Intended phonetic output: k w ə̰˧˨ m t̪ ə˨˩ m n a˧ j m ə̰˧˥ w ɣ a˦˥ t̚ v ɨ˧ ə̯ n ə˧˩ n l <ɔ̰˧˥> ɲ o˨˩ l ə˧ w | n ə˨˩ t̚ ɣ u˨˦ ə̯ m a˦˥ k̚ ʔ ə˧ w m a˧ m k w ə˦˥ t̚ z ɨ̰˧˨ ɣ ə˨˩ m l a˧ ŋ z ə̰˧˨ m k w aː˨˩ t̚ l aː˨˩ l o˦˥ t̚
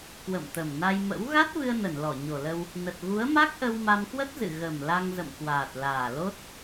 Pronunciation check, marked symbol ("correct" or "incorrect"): incorrect